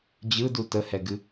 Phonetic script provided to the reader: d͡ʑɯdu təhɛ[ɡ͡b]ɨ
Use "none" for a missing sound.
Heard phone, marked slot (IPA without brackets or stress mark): ɡ